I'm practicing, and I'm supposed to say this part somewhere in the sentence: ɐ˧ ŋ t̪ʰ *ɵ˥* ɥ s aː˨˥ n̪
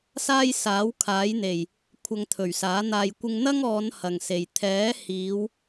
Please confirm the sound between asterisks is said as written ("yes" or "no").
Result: no